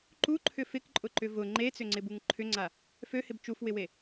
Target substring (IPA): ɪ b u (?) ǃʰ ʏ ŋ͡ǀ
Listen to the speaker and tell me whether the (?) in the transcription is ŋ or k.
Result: ŋ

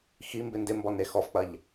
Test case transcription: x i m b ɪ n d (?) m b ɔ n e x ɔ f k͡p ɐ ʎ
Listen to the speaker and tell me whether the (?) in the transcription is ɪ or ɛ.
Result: ɪ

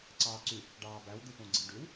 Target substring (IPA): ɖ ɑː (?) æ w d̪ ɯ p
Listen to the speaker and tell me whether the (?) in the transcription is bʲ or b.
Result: b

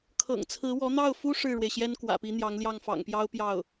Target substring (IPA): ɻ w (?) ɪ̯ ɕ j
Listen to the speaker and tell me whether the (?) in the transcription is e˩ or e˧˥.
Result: e˩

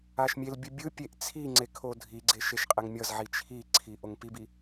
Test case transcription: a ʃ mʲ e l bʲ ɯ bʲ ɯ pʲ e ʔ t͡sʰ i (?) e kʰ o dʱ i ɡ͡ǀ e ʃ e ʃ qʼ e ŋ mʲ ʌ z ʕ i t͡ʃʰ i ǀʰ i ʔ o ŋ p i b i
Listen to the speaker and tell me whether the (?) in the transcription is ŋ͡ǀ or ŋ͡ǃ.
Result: ŋ͡ǀ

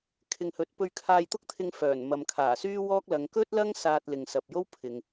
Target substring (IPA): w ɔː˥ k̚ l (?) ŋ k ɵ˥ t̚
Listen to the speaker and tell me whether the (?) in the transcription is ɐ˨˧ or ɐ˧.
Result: ɐ˨˧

